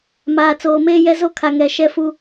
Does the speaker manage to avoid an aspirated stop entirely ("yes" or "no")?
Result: no